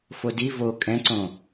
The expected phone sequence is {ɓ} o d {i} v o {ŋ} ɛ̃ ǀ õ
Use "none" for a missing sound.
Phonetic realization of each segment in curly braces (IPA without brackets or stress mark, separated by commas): f, i, kʼ